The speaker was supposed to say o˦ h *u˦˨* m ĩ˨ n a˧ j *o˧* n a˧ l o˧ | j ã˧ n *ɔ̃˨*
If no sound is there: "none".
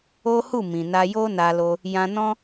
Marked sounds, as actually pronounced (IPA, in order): u˦˨, o˦, ɔ̃˦

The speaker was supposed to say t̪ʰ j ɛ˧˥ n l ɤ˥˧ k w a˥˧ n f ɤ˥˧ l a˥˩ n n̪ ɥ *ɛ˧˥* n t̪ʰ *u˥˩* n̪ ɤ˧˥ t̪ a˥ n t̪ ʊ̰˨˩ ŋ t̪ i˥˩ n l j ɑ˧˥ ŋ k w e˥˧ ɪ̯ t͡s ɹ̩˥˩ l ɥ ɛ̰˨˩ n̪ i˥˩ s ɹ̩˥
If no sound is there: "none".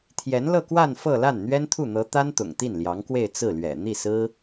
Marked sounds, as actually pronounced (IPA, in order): ɛ˥, u˥˩

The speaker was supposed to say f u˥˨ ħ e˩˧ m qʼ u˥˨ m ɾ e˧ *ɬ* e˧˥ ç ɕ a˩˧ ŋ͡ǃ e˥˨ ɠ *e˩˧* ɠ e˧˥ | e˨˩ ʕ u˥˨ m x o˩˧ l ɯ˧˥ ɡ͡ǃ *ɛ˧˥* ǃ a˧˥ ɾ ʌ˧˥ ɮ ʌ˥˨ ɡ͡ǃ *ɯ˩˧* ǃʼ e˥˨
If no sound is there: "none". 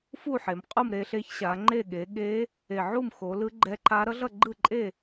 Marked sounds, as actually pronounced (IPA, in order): ɬ, e˩˧, ɛ˧˥, ɯ˥˨

